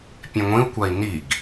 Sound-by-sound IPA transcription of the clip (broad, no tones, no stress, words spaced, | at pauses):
pʲẽŋʷĩu̯kʷai̯ niɡ